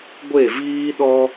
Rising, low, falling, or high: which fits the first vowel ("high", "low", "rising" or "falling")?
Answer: falling